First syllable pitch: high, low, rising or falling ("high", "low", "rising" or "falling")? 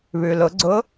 low